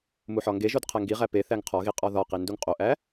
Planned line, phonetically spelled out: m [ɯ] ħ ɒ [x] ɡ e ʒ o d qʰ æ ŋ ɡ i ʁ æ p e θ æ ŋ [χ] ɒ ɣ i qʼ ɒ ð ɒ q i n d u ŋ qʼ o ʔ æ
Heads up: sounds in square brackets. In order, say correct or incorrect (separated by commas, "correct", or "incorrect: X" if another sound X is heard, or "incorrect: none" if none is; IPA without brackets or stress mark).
incorrect: u, incorrect: ŋ, incorrect: qʰ